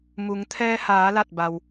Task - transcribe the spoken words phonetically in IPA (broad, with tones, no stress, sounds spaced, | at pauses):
m u˩˧ ŋ t̪ʰ ɛː˧ h aː˩˧ l a˧˩ t̚ b a˩ w